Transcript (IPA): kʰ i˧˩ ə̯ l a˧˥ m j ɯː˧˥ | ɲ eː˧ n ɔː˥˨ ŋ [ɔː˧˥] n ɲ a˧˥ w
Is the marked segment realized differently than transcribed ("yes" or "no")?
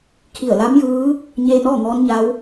no